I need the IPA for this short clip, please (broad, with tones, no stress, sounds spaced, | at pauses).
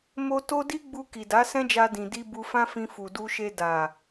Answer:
m o˧ t o˦ d i˦ ɡ͡b u˧ k i˨ d a˨˦ s ɛ̃˦ d͡ʒ a˧ d ĩ˨ d i˧ b u˧ f ã˦ f ĩ˧ f u˨ d u˧ ʃ e˧ d a˨